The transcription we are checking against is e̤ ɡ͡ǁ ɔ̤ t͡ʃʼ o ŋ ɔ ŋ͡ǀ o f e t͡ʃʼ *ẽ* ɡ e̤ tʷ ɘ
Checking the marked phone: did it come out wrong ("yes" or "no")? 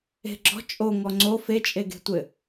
yes